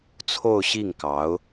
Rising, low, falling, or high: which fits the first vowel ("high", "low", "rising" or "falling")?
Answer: falling